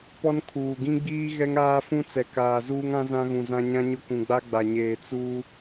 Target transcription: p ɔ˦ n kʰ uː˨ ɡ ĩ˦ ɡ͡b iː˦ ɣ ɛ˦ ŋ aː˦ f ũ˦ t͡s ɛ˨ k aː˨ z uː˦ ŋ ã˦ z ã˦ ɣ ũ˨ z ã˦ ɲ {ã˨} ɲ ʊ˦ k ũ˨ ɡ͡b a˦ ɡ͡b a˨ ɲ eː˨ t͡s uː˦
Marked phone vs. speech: incorrect: ã˦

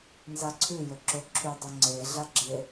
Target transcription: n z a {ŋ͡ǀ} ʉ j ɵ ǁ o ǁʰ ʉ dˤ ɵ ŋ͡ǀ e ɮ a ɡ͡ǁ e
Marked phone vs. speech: incorrect: ǀʰ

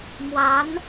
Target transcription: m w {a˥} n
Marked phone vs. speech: incorrect: a˧˥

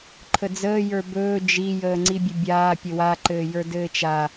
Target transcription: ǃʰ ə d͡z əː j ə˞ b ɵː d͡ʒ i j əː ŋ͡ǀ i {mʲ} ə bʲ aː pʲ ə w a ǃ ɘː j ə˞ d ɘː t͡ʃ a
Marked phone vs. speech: incorrect: bʲ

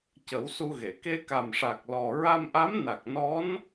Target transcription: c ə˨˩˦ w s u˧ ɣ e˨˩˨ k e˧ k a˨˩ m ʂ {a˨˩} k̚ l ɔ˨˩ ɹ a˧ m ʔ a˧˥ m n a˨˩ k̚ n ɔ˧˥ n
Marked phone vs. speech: correct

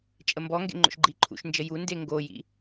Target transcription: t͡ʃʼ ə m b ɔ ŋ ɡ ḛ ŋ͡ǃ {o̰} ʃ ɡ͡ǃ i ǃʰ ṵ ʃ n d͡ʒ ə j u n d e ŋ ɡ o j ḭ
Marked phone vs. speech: correct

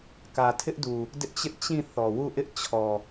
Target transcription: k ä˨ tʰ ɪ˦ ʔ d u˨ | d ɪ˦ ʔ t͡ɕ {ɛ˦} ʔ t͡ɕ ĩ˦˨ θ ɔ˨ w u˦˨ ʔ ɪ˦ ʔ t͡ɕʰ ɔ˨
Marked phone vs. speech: incorrect: ɪ˦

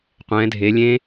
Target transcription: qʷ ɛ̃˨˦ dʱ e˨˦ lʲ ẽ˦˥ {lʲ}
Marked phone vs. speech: incorrect: none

